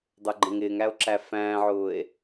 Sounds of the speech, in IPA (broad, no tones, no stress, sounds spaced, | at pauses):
dˤ ə˞ ɡ͡ǃ ə̃ ŋ ɪː ŋ æ o̯ ǁ æ f æ̃ː ʕ ʊː e̯